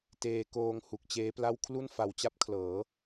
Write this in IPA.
teː˧ koː˧ŋ hu˨˩k̚t͡ɕeː˦˥pla˥˩w kʰlu˥˩nfa˨˩wt͡ɕa˥˩p̚kʰlɤː˩˦

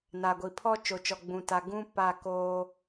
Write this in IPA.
na˨ɡʷi˨ pʰɔ˦t͡ʃo˨t͡ʃɔ˨ ɡ͡bũ˨ta˨ ɡũ˦ pa˦˨koː˦

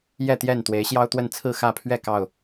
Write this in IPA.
jɛ˥˨t̪jɛ˥˨n t̪we˨˦ɪ̯ɕjɑ˦ʊ̯t̪wə˥˨n t͡sʰɹ̩˥˨xä˥˨pʰɥɛ˥˨ kɑ˥˨ʊ̯

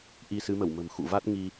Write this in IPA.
ʔi˧ sɨ˨˦mə˧˩wmə̤˨˩mxṵ˧˨ va˦˥t̚ŋi˧

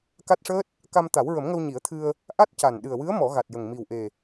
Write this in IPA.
ka˦˥t̚ʂəː˦˥t̚ | ka˧mt̪a˨˩˦wɹə˨˩˦mŋə˧w ɲi˨˩˦ə̯t̪ʰɨ˧ə̯ | ʔa˦˥t̚ca˨˩n ɗɨ˨˩ə̯wɨ˧˥ə̯ mɔ˨˩˦ ɣa˨˩t̚jə˨˩ŋ mi˨˩wʔe˨˩

